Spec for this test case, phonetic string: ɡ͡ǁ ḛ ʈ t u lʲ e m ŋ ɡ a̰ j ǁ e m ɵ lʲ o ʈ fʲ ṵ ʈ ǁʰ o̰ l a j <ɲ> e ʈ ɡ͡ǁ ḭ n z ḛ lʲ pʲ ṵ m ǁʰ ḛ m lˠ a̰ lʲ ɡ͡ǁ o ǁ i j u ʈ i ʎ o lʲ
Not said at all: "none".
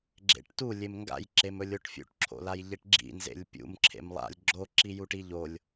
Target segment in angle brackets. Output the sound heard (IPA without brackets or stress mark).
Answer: ʎ